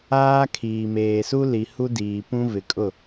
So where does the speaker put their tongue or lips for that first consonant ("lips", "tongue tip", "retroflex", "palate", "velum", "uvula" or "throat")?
velum